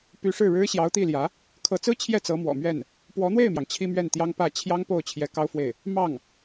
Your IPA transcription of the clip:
p y˧˥ ʂ ɻ̩˥˩ ɻ ɻ̩˥ ɕ j ɑ˧˥ ʊ̯ t̪ i˥˩ l j ä˧˥ | kʰ ɤ˧˥ t͡s ɹ̩˥ t͡ɕʰ j ɛ˥˩ t͡s ɤ˧˥ m w ɔ̰˨˩ m ɥ ɛ˥˩ n | p w ɔ˧˥ n̪ w e˥˩ ɪ̯ m j ɑ˩ ŋ t͡ɕʰ i˥ m ɥ ɛ˥˩ n t̪ j ɑ˥ ŋ p ä˥˩ t͡ɕʰ j ɑ˥ ŋ p o˥˩ ʊ̯ t͡ɕʰ j ɛ˧˥ k ɑ˥ ʊ̯ f w e˥˩ ɪ̯ | m ɑ˥˩ ŋ

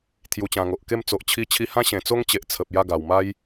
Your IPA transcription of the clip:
t̪ʰ j u˨˩ t͡ɕ ã˨˩ ŋ o˨ ʔ k e˥˧ m t͡s o˨ ʔ t͡ɕʰ i˧ t͡ɕʰ i˧ h ã˦ ɕ ẽ˨˩ t͡s o˦ ŋ t͡ɕ e˨ ʔ t͡sʰ ə˨ p̚ j a˥˧ ɡ a˨˩ w m a˧ j

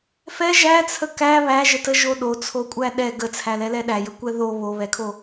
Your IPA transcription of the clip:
f ɛ ʒ æ t͡sʰ ə k æ β æ ʒ ə t ə ʒ o ɗ o t͡sʰ o kʷʼ æ ɗ ɛ ɡ ə t͡sʰ æ l ɛ l ɛ ɗ æ j ə kʷ ɛ ð o β o β ɛ kʰ o

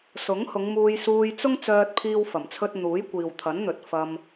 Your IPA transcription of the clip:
s ʊ˨˥ ŋ h ʊ˨˧ ŋ m uː˧ j s uː˧ j t͡s ʊ˥ ŋ t͡s œː˥ t̚ pʰ iː˥ w f ɐ˨˩ m t͡sʰ ɵ˥ t̚ n̪ uː˨˥ j kʷ iː˨ w t̪ʰ ɐ˨˥ n n̪ ɵ˨ t̚ f ɐ˧ m

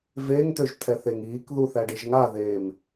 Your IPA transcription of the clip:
v e ŋ t̪ ø ʒ t̪ʰ ɛ θ e ŋ iː k ð u θ æ ɖ ɨ ʒ ŋ a ð eː m

